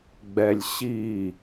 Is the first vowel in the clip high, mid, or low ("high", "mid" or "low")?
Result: mid